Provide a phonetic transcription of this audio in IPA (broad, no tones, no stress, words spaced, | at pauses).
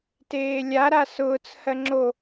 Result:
teːlʲa ɾasʊːt͡s hɜŋ͡ǁo